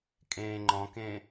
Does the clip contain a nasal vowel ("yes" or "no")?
yes